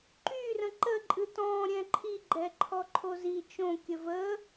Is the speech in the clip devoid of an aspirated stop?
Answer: no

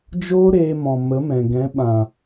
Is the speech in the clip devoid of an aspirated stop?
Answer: yes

